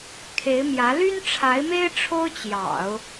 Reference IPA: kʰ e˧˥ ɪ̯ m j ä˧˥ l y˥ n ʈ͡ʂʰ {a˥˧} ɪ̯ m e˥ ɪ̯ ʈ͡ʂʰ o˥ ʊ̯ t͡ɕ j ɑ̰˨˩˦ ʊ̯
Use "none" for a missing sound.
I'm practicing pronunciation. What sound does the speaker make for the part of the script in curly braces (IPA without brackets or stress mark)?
a˧˥